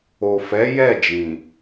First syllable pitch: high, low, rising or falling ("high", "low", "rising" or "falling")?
low